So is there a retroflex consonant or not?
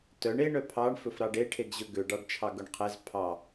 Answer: yes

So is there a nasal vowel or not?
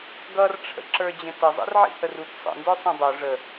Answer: yes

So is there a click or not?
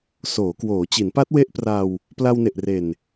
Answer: no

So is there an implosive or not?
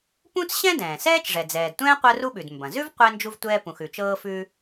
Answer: yes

